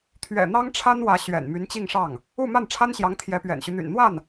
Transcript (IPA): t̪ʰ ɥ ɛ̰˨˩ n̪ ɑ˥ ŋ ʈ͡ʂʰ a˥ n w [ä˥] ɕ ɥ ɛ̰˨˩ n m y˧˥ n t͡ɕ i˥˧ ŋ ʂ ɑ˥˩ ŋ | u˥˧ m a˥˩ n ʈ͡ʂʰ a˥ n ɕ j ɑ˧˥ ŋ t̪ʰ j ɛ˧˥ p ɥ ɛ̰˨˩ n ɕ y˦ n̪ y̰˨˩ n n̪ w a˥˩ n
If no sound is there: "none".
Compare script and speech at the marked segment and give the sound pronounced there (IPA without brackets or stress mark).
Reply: ä˧˥